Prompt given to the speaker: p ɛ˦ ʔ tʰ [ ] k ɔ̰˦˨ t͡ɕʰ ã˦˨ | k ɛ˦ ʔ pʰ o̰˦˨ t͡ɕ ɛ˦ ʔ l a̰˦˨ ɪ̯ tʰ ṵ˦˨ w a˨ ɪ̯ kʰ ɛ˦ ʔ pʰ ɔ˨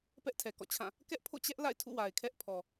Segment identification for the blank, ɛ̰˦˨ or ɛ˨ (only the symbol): ɛ˨